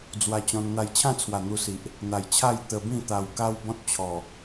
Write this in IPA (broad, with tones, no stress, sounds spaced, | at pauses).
d͡z w a˧ t͡ɕ ɔ̃˧ n n̪ a˧ j t͡ɕʰ ã˥˧ t͡sʰ w a˨˩ n̪ u˧ s i˨ ʔ | n̪ a˨˩ j t͡ɕʰ a˥˧ j t̪ ə˧ b ĩ˥˧ t̪ a˧ w k a˦ w b ɔ̃˦ t̚ t͡ɕʰ ɔ˨˩